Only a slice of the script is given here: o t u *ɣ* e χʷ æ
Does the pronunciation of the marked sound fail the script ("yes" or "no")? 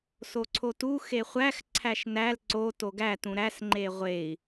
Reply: yes